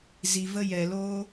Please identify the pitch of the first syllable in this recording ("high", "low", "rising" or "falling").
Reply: low